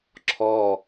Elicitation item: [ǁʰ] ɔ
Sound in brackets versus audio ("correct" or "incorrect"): correct